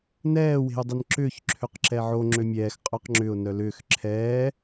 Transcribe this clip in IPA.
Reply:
n ɛː w e̤ ʊ̯ dˤ ɪ n ǁ ʏː ç ǁʰ ø q ǁ ɛ ʕ o ŋ͡ǁ ø mʲ ɛː x qʼ œ q ŋ͡ǁ ʏ ʊ̯ n œ l ʏː x ǁʰ ɛː

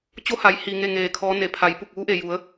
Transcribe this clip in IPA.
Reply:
t͡ɕ o˧˥ h a˩˧ j h iː˩ ŋ e˥˨ ŋ eː˧˩ kʰ ɔː˧˥ n e˩ pʰ a˩˧ j p u˧˩ k̚ ʋ uː˧˥ ʔ e˩ j u˩˧ ə̯

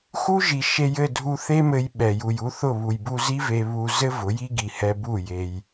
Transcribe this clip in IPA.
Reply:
x u˦ ʒ i˨ ʃ e˧ j ɘ˦˨ dʱ u˧ θ e˦ m ɘ˧ j ɓ ɛ˨ j u˨ j u˧ θ ʊ˦˨ β u˨ j b u˧ z i˦ v e˧ β u˧ z ɘ˦ v ʊ˨˦ j i˦ ɡ i˨ h ɛ˧ b u˦˨ j e˧ j

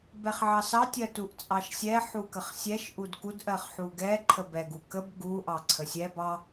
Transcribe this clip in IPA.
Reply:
b ɛ χ ʕ ɑ s ɑ tʲ ɜ t u ʔ t͡sʼ ɑ ʃ sʲ ɛ ħ u k ə χ sʲ ɛ ʃ ʔ u d k u d ʔ ɜ χ ħ u ɡ ɛ ǃʰ ə b ɛ ɡ u k ə b ɡ u ʔ ɑ ǀʰ ə sʲ ɛ b ɑ

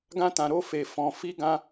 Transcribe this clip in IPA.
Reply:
ɡ ã˦ t ã˧ ɾ o˦ f e˧ f ɔ̃˧ f i˦ ɡ ã˦

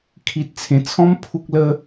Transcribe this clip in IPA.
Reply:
kʰ i˨ t̚ t͡sʰ ẽ˨˩ t͡sʰ ɔ̃˦ m pʰ u˦ k̚ l ə˦

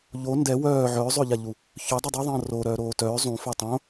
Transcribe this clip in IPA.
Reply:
ʎ o n d ɛ w œː ʕ œː zˤ ø ʎ a ʎ u | ç œ dˤ o dˤ o ðˤ ɐ̃ː r o ɾ œː ɾ oː t œː zˤ ũ f ø tˤ õ

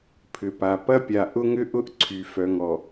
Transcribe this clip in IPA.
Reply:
pʰ ʏ˨ p a˨ p ɐ˦ pʲ a˨ ʔ ʊ˦ ŋ ʏ˦ ʔ ʊ˦ ʔ ǀʰ y˨ f œ˨ ŋ ɔ˨

